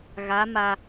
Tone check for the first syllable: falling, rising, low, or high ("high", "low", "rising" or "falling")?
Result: rising